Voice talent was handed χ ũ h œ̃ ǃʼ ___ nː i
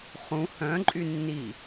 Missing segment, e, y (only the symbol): y